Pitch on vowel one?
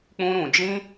high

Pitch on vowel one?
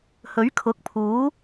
rising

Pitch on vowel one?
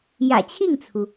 low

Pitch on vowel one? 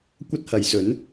high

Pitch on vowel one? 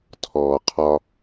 low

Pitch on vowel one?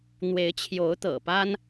rising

